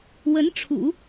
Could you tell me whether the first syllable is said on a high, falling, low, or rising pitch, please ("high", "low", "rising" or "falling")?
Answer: rising